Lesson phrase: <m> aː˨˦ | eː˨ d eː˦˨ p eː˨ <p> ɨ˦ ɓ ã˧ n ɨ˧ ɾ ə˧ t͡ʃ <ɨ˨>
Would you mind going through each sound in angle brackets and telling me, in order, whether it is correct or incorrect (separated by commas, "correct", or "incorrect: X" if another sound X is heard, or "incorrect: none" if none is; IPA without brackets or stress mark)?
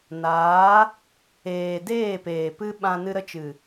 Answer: incorrect: n, correct, correct